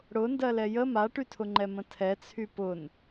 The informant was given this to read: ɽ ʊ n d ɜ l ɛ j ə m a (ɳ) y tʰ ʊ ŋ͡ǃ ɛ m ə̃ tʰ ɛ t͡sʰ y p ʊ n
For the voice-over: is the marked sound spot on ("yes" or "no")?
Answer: no